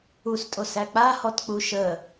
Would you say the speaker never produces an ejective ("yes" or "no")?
no